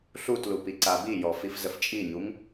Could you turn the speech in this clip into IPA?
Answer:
ɬ u t l u p i ǀ a b i j ɔ f i f z ə f t͡ʃʼ i ɲ u ŋ

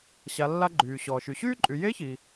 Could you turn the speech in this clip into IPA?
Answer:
ɕ a˩˧ lː a˧ ɡ͡ǃ yː˩ ɕ ɔː˩ ʃ y˩ ɕ yː˥ ǃʼ y˩˧ j e˧˥ ç i˩

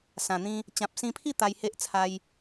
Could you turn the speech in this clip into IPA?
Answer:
s ã˨˩ n̪ ĩ˧ | t͡ɕ ã˨ p̚ s ĩ˧ pʰ i˥˧ t̪ a˧ j h e˦ ʔ t͡sʰ a˧ j

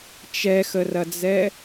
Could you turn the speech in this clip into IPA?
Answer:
t͡ʃ ɛ x ə r ɐ d͡z ɛ

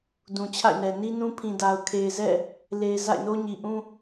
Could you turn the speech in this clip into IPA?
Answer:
d ũ˨ t͡ɕʰ a̰˦˨ ɪ̯ n ɛ˨ n i˦ n ũ˦ pʰ ĩ˨ d a˨ ʊ̯ kʰ e˨ ɪ̯ z ɛ̰˦˨ | l e˨ ɪ̯ z a̰˦˨ ɪ̯ n o˦ ɲ i˨ ʔ ũ˦

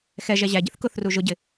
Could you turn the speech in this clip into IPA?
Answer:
x ɛ ʒ ɛ ʑ æ ɟ ɪ θ k ʊ θ r u ʒ ʊ ɟ ɪ

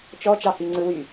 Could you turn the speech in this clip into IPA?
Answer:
t͡ʃ ɔ t͡ʃ ɑ h i ŋ͡ǀ ɯ w y

